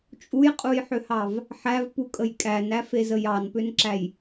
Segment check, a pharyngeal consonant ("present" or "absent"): present